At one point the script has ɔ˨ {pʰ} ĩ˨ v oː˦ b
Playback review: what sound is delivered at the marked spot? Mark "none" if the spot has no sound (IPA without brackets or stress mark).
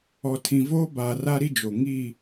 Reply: tʰ